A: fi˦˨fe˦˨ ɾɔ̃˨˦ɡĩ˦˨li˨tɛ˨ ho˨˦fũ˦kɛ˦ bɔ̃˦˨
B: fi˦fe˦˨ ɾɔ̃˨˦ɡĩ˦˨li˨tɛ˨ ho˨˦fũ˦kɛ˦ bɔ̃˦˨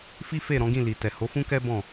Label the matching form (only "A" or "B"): B